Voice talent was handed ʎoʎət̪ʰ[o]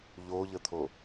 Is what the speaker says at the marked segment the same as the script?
yes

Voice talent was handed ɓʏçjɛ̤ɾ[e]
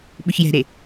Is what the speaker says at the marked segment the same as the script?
yes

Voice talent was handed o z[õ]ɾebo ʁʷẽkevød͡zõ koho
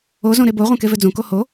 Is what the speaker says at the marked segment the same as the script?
yes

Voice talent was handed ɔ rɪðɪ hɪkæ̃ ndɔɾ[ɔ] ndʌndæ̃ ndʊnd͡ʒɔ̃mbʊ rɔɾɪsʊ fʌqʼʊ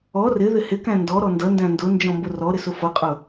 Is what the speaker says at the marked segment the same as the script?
yes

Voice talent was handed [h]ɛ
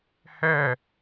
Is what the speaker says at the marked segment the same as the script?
yes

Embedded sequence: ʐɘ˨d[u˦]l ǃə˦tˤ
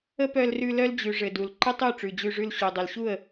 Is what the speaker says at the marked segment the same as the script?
no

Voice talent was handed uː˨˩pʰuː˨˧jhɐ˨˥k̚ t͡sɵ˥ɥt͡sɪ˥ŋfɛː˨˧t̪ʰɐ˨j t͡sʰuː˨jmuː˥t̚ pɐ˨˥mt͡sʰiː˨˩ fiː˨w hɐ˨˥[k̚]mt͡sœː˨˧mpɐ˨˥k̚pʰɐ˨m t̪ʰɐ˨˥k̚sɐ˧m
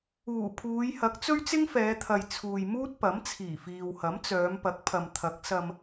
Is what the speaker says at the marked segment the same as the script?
no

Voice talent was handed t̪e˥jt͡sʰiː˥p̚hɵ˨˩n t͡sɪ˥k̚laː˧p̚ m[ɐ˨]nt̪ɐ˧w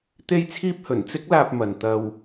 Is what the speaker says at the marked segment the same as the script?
yes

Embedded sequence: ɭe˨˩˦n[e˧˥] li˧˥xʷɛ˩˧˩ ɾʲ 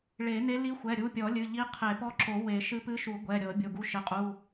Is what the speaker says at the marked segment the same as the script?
yes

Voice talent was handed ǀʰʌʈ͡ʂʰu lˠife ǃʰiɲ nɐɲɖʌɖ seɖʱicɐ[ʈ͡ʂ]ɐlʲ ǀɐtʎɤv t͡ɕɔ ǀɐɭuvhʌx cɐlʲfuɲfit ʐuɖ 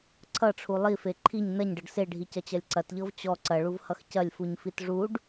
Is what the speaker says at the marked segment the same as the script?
no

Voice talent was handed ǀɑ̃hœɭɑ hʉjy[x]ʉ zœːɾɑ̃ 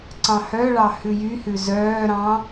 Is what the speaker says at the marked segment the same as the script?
no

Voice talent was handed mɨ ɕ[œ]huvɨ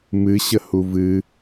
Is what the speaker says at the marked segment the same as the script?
no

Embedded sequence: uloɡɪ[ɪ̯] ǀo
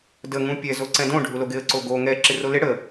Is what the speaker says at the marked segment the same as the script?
no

